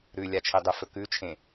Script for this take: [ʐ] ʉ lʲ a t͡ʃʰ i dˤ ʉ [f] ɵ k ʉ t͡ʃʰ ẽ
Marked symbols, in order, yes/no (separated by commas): no, yes